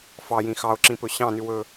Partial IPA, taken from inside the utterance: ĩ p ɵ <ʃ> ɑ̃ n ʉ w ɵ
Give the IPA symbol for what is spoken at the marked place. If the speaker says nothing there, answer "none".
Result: ɕ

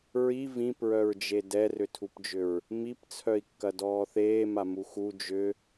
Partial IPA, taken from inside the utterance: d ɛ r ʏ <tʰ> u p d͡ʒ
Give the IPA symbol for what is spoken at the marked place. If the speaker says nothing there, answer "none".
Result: tʰ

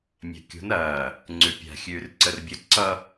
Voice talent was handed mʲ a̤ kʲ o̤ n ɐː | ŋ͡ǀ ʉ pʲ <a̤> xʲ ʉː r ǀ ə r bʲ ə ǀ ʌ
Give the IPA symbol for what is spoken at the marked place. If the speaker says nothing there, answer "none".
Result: a̤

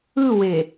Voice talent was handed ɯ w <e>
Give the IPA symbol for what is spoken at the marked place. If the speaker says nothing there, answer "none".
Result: e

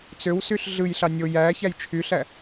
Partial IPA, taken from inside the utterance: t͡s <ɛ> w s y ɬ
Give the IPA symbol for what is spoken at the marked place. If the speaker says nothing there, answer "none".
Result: ø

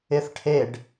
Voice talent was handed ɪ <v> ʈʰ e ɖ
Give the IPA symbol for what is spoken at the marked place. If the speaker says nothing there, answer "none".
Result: θ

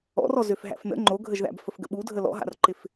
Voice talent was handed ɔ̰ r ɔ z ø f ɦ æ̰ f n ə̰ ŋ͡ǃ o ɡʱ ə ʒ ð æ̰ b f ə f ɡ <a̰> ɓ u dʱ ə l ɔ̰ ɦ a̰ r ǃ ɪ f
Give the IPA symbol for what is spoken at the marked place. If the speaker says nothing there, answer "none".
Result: ə̰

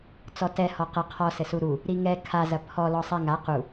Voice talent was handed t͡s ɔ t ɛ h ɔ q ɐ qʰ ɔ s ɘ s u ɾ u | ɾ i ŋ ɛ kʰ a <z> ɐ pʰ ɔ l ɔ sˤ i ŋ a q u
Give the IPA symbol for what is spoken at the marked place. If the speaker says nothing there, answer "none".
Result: z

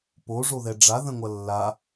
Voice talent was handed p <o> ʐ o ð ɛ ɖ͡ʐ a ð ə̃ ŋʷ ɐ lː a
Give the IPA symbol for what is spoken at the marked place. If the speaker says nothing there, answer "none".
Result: o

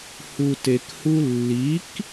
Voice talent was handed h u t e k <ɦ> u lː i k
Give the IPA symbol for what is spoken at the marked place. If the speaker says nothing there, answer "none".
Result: h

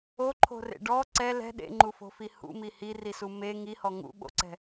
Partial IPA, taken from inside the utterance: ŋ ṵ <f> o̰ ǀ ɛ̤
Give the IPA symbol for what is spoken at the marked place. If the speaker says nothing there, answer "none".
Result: ɓ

